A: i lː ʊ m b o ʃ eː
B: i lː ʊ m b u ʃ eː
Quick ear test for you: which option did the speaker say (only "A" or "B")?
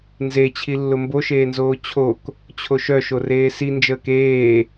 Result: A